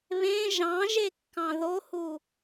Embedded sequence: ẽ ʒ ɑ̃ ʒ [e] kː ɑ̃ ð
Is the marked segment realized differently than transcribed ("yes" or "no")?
no